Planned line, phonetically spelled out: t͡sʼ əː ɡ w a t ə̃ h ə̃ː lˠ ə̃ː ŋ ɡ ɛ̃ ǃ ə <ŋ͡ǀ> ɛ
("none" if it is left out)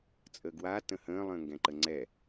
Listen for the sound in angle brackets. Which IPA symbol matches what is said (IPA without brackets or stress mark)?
ŋ͡ǀ